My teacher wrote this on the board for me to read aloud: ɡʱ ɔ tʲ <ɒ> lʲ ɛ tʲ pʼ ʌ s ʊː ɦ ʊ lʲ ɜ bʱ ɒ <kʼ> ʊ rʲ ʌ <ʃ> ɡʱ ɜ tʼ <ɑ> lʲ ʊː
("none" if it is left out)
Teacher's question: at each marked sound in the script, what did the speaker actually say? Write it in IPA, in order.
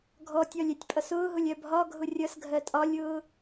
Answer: ɒ, ɡʱ, s, ɒ

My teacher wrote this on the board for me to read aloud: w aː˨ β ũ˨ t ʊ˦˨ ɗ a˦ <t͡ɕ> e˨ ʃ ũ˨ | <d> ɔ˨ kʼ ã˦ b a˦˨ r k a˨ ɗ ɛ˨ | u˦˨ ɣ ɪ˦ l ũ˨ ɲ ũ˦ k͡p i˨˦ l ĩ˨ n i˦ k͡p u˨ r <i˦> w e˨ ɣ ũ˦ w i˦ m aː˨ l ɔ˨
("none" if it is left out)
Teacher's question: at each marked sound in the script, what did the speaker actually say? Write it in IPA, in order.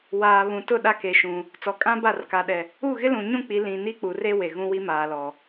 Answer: k, t͡s, e˦

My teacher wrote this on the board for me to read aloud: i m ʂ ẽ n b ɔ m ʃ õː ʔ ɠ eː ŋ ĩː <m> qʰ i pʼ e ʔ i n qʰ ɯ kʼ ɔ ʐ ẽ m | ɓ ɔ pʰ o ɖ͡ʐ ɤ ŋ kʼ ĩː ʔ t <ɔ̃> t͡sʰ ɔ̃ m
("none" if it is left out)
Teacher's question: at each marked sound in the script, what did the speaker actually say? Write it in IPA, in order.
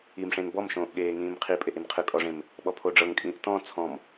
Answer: m, ɔ̃

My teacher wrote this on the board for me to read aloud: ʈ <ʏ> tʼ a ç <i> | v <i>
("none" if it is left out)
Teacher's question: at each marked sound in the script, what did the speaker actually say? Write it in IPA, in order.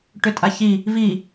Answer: ʏ, i, i

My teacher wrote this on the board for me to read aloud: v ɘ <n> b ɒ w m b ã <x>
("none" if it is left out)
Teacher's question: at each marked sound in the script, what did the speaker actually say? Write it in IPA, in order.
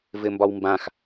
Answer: m, x

